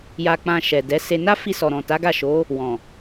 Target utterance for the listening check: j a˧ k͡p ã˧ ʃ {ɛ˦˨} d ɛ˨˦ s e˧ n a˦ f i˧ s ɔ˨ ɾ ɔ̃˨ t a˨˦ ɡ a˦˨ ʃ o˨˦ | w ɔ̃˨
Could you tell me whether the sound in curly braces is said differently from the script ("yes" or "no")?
yes